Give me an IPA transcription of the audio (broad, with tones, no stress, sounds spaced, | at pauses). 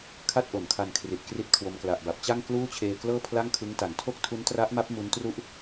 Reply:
kʰ a˥˩ t̚ ʔ o˩˦ n kʰ a˧ n kʰ r i˨˩ t̚ k r i˥˩ t̚ kʰ w o˧ m k l a˨˩ ʔ b a˨˩ p̚ t͡ɕ a˥˩ ŋ k l uː˥˩ t͡ɕʰ eː˧ k l ɤː˥˩ pʰ l a˥˩ ŋ kʰ ɯ˦˥ ŋ t a˩˦ n tʰ o˥˩ k̚ tʰ u˦˥ n t r a˦˥ ʔ m a˦˥ p̚ m u˦˥ n t r u˥˩ ʔ